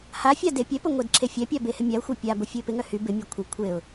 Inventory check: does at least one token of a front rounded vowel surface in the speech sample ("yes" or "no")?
yes